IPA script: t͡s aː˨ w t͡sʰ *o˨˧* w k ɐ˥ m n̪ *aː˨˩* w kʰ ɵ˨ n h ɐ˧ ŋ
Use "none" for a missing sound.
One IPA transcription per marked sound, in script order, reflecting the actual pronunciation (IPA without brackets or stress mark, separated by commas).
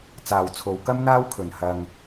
o˨˧, aː˥